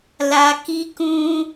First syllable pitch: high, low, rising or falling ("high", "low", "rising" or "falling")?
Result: low